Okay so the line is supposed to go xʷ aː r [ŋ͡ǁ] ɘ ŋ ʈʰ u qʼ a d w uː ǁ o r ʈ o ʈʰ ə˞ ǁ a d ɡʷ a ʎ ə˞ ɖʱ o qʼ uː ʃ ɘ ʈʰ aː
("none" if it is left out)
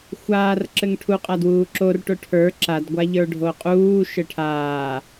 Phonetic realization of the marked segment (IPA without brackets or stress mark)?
ǁ